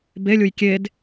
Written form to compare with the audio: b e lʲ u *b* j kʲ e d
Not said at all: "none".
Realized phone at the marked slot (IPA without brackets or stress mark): none